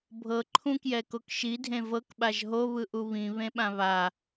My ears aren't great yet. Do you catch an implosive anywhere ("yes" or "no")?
yes